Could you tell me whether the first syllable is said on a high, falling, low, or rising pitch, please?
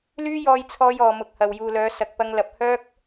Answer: high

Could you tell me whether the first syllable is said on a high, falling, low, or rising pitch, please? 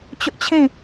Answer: high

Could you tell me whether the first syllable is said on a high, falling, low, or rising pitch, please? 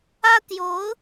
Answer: high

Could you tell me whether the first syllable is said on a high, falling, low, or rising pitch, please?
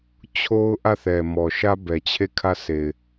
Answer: high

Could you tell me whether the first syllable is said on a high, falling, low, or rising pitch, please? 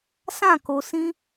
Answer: falling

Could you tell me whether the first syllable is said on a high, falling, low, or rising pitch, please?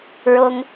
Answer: high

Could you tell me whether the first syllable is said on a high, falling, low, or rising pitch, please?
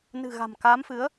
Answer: low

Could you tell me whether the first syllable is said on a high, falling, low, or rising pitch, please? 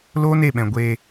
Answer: high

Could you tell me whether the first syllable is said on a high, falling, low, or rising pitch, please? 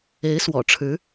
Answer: rising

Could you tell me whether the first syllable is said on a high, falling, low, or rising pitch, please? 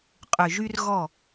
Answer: low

